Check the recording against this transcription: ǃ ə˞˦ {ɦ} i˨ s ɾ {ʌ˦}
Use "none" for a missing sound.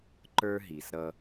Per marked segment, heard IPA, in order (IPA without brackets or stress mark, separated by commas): ɦ, ʌ˦